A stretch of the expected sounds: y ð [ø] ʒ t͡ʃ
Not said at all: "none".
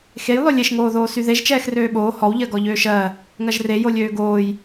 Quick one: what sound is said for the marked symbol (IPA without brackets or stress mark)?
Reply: e